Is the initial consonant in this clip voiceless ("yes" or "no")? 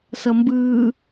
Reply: yes